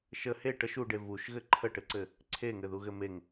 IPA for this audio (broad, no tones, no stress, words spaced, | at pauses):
ʃə he ʈəʃ uɖe vuʃɣɘ ǃʰəʈɘǀɘ | ǀʰeŋɘðuɣɘ meŋ